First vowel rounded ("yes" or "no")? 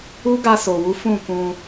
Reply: yes